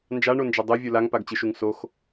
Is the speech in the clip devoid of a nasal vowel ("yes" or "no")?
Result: yes